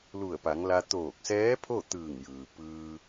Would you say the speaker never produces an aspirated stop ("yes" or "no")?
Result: no